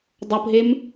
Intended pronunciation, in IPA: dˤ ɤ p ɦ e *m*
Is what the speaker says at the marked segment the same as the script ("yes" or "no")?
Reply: yes